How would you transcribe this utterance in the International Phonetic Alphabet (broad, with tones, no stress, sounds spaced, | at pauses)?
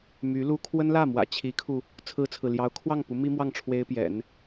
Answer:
m y˧˥ l u˥ kʰ w ə˥ n l ä˥˩ m w ä̰˨˩ t͡ɕʰ i˧˥ kʰ u˧ | t͡sʰ ɹ̩˥ t͡sʰ ɹ̩˨ l j ɑ˧˥ ʊ̯ kʰ w ɑ˥˩ ŋ p u˧˥ m i˥ m w ɑ˥˩ ŋ ʈ͡ʂʰ w e˥ ɪ̯ p j ɛ̰˨˩˦ n